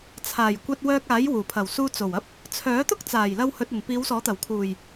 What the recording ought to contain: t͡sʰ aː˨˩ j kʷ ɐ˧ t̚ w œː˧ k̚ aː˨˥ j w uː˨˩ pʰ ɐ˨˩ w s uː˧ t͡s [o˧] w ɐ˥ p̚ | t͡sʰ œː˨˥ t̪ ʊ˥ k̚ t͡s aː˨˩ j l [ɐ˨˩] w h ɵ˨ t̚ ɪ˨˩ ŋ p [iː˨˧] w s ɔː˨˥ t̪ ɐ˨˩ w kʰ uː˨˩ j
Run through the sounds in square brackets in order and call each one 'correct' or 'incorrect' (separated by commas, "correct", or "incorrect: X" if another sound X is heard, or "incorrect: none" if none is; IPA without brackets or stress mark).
incorrect: o˨˩, incorrect: ɐ˧, correct